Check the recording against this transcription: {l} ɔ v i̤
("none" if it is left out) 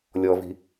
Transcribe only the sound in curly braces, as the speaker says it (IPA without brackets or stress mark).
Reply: lʲ